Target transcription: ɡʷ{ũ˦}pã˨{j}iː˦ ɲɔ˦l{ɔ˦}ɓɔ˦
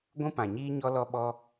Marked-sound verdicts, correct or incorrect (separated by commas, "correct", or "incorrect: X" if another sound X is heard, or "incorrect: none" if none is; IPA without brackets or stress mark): correct, incorrect: ɲ, correct